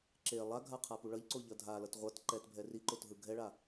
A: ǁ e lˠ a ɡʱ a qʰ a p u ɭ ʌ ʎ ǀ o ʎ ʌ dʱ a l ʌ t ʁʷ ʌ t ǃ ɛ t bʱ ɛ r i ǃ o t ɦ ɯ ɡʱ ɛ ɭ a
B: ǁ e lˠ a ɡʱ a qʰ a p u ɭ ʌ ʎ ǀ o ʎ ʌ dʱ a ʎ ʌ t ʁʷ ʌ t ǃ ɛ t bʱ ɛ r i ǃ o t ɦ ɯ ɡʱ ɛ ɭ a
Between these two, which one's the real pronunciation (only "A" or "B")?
A